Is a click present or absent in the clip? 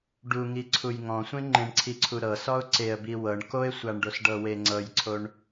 present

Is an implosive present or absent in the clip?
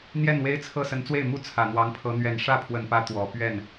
absent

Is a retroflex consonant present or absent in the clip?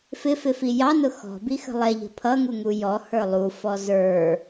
absent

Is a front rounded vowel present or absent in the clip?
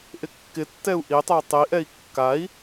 present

